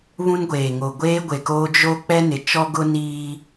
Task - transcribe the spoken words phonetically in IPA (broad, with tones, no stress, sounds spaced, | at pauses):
β ũ˦ n ɡʷ eː˨ ŋ o˨ ɡʷ eː˦ ɡʷ e˨ k oː˦ d͡ʒ o˦ k͡p ɛ˦ n ɪ˨ t͡ʃ ɔ˦ ɡ ʊ˦ n iː˦